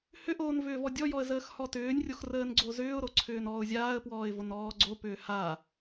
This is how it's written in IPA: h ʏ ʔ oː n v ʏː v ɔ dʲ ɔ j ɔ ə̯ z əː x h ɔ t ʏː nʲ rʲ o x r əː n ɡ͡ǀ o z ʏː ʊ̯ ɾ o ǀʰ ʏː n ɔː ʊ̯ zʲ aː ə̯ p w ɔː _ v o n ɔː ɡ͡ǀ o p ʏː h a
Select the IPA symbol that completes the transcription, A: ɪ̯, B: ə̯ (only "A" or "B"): A